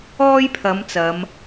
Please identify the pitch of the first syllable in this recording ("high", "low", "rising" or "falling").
high